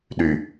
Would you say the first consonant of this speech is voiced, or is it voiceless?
voiced